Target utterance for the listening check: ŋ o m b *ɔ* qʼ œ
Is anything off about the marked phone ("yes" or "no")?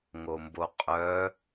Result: yes